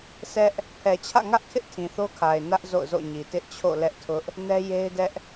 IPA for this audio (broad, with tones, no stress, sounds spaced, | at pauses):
sʰ ɛ˦ ʔ | pʰ ɛ˨ t͡ɕʰ ä̰˦˨ ŋ ä˦ ʔ kʰ ɪ˦ ʔ tʰ ĩ˨ θ o˦ kʰ a˨ ɪ̯ n ä˦ ʔ z o̰˦˨ ʊ̯ z o̰˦˨ ɲ i˨ t ɪ˦ ʔ t͡ɕʰ o̰˦˨ l ɛ˦ ʔ tʰ ʊ˦ ʔ | n ɛ˦ j e˦ ɪ̯ d ɛ˦ ʔ